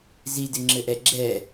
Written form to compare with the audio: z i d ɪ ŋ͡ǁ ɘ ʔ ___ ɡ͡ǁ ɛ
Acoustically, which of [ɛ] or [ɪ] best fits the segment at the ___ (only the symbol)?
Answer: ɛ